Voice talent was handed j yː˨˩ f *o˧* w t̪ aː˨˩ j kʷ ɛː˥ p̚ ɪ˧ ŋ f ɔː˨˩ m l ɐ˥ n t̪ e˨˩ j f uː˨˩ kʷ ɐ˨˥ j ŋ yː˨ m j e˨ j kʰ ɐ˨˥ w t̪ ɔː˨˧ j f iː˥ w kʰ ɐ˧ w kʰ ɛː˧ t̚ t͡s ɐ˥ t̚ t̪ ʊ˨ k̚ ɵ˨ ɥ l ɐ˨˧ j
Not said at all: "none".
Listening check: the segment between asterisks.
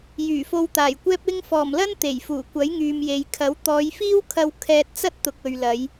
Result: o˧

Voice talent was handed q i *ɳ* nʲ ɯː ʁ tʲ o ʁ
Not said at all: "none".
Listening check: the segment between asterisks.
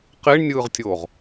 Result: ɳ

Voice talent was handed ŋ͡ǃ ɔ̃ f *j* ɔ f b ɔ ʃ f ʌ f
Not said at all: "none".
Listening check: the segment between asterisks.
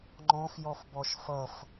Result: j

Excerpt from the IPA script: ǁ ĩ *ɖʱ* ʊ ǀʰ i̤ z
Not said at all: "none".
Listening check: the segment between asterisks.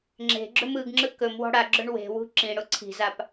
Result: ɽ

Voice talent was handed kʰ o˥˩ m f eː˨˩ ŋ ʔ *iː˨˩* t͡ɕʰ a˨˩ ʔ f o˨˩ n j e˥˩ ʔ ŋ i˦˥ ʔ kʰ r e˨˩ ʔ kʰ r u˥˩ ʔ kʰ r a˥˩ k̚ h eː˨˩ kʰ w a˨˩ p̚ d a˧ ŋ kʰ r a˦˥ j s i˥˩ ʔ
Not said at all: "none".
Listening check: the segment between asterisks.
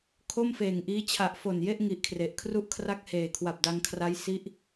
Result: iː˦˥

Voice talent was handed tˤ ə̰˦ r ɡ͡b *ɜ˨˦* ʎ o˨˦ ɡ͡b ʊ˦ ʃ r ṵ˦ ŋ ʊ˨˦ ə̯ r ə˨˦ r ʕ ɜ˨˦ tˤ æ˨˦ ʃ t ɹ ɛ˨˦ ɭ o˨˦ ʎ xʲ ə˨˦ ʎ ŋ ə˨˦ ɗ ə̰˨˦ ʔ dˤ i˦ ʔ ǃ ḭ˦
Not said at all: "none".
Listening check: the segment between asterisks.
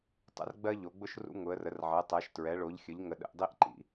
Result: ɜ˦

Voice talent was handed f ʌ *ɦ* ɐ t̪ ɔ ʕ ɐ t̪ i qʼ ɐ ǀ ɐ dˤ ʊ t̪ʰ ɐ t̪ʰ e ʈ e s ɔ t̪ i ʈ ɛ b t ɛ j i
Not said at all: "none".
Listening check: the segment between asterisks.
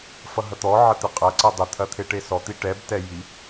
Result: ɦ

